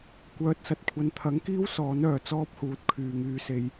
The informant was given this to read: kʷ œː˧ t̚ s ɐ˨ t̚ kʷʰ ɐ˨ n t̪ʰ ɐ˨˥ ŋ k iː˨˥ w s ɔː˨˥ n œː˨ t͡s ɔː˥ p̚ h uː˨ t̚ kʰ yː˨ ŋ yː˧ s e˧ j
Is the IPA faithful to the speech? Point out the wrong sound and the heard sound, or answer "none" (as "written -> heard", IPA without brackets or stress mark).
iː˨˥ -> iː˥